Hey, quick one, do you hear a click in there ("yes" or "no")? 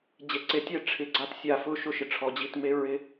yes